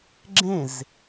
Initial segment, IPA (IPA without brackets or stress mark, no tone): ɡ͡ǁ